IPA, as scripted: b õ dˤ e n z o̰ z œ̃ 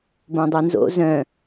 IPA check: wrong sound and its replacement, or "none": none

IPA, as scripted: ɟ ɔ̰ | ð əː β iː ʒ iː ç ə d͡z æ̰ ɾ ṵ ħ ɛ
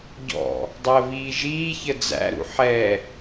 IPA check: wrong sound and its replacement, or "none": ð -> dˤ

